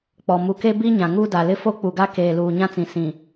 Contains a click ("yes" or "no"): no